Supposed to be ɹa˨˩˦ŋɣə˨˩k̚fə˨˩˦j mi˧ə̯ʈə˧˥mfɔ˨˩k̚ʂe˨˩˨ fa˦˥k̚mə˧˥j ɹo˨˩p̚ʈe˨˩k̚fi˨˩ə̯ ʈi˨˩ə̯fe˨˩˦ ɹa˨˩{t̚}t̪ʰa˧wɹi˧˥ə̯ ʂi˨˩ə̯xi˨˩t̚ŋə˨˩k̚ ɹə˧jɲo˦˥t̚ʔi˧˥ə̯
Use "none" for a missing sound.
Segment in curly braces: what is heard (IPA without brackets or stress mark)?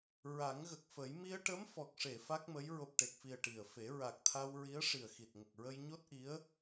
k̚